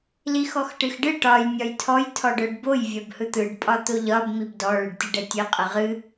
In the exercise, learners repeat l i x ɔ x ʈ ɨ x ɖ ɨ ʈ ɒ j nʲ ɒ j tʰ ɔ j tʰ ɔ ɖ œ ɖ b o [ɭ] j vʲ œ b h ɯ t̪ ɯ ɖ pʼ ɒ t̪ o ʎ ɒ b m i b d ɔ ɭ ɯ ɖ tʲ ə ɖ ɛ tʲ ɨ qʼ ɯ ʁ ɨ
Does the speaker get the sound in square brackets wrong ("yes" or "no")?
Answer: yes